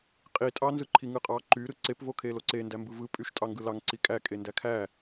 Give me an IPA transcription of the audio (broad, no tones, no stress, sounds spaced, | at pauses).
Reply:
qʼ i tʼ ɑ n z ɯ ǃʰ i ŋ ɯ qʼ ɑ ǃ y ɾ ɯ ǀ e p v o kʰ e l o ǀ e n d æ m b ɯ v ɯ pʼ y ʃ tʼ ɑ ŋ ɡ ɯ l ɑ ŋ ǀ i kʼ æ kʼ e n d æ kʰ æ